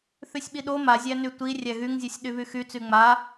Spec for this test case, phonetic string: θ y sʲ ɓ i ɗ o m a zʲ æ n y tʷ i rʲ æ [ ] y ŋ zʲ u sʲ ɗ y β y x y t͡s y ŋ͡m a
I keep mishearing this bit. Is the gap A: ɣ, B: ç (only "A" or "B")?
A